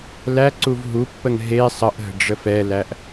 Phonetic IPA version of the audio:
l æ ǀ u v ɦ u pː ə ŋ ɦ e sˤ ə ʔ ɦ ə̤ ɖ͡ʐ ə f ɛ l æ ʔ

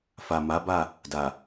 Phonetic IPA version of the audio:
f a˨ m a˨˦ b a˦˨ | d a˨

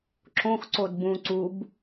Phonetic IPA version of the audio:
ǁ õ x ǀ o d b ũ ǀ u b

